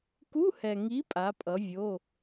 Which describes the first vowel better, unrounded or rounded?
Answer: rounded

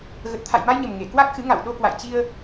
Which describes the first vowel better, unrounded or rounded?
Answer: unrounded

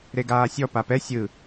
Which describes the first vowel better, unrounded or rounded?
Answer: unrounded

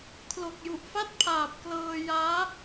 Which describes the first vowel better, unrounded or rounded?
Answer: rounded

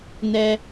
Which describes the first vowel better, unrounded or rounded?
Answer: unrounded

